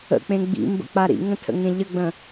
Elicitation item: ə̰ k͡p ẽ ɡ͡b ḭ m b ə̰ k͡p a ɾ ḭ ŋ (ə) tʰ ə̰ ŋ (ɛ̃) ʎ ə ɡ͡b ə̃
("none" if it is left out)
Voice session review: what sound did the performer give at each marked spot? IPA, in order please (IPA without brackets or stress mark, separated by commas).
ə̃, ẽ